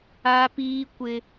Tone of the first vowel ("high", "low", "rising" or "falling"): high